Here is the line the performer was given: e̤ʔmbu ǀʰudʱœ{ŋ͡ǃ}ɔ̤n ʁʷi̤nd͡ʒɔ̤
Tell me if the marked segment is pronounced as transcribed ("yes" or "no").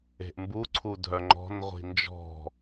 yes